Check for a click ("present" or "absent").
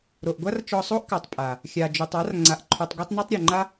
present